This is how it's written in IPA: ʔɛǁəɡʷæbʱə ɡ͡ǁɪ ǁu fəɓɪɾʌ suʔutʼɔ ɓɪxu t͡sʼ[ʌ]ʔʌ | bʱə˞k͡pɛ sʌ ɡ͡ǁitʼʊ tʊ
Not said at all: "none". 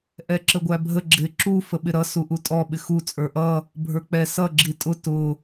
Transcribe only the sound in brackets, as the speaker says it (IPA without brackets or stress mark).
ə˞